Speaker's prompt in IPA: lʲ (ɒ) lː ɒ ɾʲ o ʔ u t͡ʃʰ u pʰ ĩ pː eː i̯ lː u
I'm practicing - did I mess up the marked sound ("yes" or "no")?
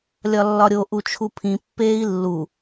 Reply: no